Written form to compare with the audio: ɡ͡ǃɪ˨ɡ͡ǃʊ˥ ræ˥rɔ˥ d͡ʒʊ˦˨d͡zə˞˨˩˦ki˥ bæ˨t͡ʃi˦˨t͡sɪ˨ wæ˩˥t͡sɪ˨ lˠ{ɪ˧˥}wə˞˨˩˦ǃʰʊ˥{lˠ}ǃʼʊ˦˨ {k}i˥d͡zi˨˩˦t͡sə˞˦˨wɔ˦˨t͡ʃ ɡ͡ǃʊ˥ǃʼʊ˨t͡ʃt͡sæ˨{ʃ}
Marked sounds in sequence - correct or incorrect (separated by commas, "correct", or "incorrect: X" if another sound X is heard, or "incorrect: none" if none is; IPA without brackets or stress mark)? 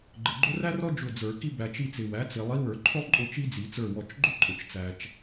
incorrect: i˧˥, correct, incorrect: t͡ʃ, incorrect: t͡ʃ